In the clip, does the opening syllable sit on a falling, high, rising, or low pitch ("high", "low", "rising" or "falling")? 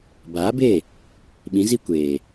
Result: rising